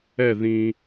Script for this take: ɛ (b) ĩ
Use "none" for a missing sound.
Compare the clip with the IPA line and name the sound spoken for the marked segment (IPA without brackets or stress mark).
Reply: ð